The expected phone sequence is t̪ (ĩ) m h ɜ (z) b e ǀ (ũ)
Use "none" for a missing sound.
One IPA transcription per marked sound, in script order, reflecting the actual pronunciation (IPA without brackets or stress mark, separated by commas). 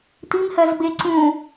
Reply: i, z, ũ